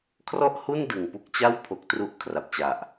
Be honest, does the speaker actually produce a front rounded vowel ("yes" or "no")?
no